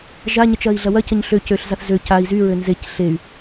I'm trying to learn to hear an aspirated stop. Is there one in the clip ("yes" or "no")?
no